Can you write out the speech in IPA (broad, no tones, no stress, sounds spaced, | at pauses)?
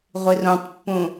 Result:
ʁʷ i r ũ tˤ pː ũ